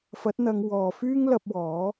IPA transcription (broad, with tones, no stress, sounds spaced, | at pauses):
f ɐ˨˥ t̚ n̪ ɐ˨˧ ŋ w ɔː˨ f yː˥ ŋ l ɐ˧ p̚ w ɔː˨˥